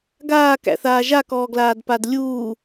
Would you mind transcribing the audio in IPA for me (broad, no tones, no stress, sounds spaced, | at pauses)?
ɡ aː k æ̰ θ aː ʒ a k ɔː ɡ l aː d p a d lʲ uː